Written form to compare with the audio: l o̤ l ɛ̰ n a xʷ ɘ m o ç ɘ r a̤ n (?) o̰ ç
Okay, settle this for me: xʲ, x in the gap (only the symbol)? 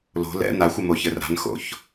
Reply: x